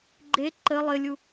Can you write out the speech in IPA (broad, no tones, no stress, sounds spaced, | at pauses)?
ɡ͡ǃ e ǃ ə lˠ ɘ lʲ u